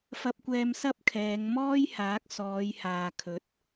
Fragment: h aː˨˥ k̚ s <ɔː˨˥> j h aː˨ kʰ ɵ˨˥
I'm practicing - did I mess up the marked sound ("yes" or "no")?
yes